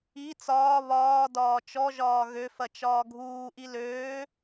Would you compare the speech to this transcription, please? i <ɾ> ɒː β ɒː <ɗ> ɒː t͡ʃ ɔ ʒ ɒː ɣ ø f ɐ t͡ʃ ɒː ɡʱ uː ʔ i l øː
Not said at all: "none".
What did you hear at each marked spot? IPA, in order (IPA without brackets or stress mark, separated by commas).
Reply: t͡s, d